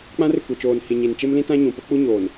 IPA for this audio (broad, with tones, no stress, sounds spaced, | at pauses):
k͡p ã˦ r ɪ˨ kʷ e˨ t͡ʃ oː˨ n h i˨ ɲ i˨ n t͡ʃ e˦ m l ĩ˦ t ã˦ ɲ ũ˨ p ʊ˦ k͡p u˦ ɲ oː˨ n